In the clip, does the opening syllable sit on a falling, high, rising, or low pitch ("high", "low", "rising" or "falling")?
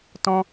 high